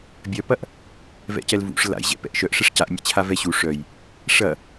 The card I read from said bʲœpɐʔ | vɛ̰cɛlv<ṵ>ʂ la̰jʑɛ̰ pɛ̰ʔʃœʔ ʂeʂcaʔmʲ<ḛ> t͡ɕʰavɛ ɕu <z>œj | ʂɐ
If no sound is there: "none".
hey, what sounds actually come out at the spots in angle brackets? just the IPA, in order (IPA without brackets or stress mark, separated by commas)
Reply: ṵ, ḛ, ʂ